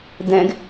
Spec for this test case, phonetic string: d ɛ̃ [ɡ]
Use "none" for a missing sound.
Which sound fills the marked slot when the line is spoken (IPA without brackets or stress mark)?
ɡ